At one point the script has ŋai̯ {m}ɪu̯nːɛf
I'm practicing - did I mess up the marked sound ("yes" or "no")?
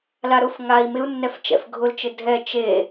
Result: no